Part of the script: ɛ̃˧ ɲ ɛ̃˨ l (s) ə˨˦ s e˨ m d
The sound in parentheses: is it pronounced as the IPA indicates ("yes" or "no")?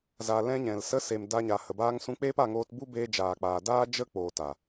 yes